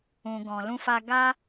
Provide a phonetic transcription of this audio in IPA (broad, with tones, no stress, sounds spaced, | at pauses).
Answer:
ũ˨ ɡ ɔ̃˨ l ũ˧ f a˧ ɡ a˦